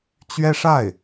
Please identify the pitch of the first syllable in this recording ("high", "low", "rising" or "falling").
high